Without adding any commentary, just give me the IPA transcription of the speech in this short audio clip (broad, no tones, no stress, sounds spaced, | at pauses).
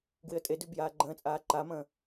ɡ w ɪ ə̯ tʼ e d ʉ b j aː ɡ͡ǃ ə̃ː t͡sʼ aː ǃ a m ə̃ː